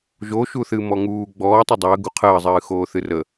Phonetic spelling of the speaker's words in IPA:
ʒ o ʃ u θ ɨ m ɔ ŋ uː ɡ͡b ɔː tˤ u dˤ əː ɡ u qʰ əː zˤ ɨː x oː θ ɨ r ə

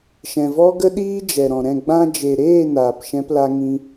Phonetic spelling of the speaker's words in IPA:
ʃ ɛ̃˨ v ɔ˦ ɡ ə˦ ɗ iː˦ d͡ʒ ɛ˨ ɾ ɔ̃˨ ɾ ɛ̃˦˨ ɡ͡b ã˧ d͡ʒ e˨ ɾ eː˦˨ n aː˨ p ʃ ɛ̃˦ p l a˦ ŋ ĩ˦

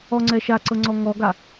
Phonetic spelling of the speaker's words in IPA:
ɔ ŋ͡ǀ ɛ ʃ a ǀ ɤ ŋ͡ǀ ɔ ŋ ɔ ɡ a

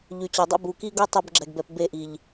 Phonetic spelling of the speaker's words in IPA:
ʎ y˨ t͡ɕ ɔ˨ dˤ ṵ˦ b u˨ k i˦ ɡ o˦ tˤ o˦ b ɡ͡ǁ ɛ˨ ɡ b ɛ˨ p b e˦˨ ʔ i˨ ʎ

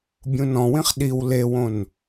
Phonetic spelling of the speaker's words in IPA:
bʲ ũ n ɔ̃ w ĩ χ ɗ i w l e w õ n

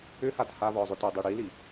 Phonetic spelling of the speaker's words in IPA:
ʏ h a t h a v ɔ zˤ ʏ t u dˤ i ɽ i l i

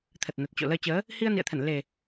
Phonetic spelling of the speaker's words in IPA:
t̪ʰ ə˨˩ t̚ n ə˨˩ t̚ t͡ɕ o̰˧˨ l əː˧ t͡ɕ əː˨˦ | h i˧ ə̯ n ḭ˧˨ ə̯ t̪ʰ ə˧˩ n l e˨˩

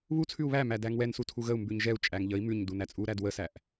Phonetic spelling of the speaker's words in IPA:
β u t͡sʰ ʉ u̯ β æ m æ d æ ŋ w ɛ n s u tʰ u ɣ ə u̯ m b ʉ ɲ ʒ ɛ u̯ t͡ʃʼ æ ŋ ʎ ə i̯ m ʉ ɲ d u n æ t͡sʼ u ɾ æ d w ə s æ ʔ

